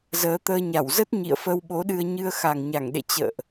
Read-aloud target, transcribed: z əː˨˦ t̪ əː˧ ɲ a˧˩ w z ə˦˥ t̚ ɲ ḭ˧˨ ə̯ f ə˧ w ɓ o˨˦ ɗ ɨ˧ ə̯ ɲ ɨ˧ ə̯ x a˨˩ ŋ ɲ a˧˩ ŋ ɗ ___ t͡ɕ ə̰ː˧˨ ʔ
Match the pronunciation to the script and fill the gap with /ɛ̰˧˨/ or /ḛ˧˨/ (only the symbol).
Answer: ḛ˧˨